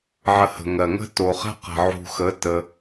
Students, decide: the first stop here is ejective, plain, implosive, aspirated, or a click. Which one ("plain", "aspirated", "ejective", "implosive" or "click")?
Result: plain